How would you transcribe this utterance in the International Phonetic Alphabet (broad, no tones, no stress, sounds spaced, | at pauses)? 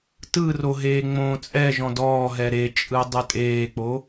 t ɯ r o ɦ eː ŋ͡m õː t͡sʼ ɛ ʒ ɔ̃ d ɔː ɦ ɛ ɾ e t͡ʃʼ ɯ dˤ ɯ tʼ eː k͡p o